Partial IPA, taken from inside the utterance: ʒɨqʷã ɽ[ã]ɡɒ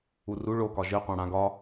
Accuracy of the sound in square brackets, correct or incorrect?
correct